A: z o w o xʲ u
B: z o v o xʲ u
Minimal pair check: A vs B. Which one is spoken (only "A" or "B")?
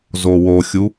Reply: A